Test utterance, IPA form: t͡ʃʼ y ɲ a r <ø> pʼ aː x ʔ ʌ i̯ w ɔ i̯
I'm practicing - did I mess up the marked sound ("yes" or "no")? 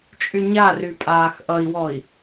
yes